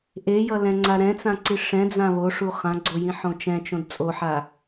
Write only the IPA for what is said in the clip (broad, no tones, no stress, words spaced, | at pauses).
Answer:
ʔejʌlɛ̃ŋ͡ǀa ɾɛ̃t͡sãǀi ʂɛ̃d͡zã βoʂu χãɡ͡ǀojĩħõ t͡ʃɛ̃t͡ʃõd t͡sʼoħa